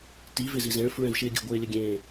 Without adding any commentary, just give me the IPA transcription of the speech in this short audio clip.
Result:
t i v ɪ z i z ẽ ɭ f ɹ ɛ̃ v ʃ ɪː ɡʲ ə̤ ɡʷ ɪː lʲ ə ɡʲ ẽː

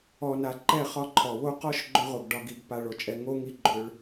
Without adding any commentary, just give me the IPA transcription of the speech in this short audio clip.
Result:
ɔ˨ n a˨ ǃ ɛ˦˨ χ ɒ˦ ǃʰ ɔ˨ w o˦ q ɔ˦ ʃ ɡ͡ǃ ʏ˦ ʁ o˨ ɡ ɖ ɒ˨ ɡ i˨ ɡ p a˨ ɭ o˨ t͡ʃʼ ɛ˨ ŋ o˦ ŋ i˦ ɡ͡ǃ ʏ˦ ɭ

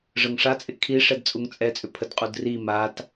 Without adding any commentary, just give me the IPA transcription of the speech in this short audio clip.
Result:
ʐ ə ŋ ʂ a t͡sʼ ɪ kʰ i ʂ ɛ d t͡sʼ u ŋ t͡sʼ ɛ t͡sʼ ʏ pʰ ə d qʼ u d r i m a t

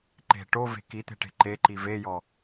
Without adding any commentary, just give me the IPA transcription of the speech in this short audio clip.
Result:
ǃ e̤ ʈ o v e̤ k i t̪ e̤ ʈ e̤ ǃ e ǃ i v e j ɔ

